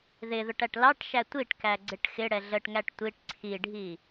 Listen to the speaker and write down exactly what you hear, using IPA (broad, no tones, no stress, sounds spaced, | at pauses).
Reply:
ð ɪ ð ʊ ʈ æ ʈ l ɑ ʈ ʃ æ tʷ i ʈ k æ ɡ͡ǀ ɪ ʈ x ɪ ɽ ɛ ɮ ə ʈ ŋ æ ʈ tʷ i ʈ ǀʰ i ɖʱ i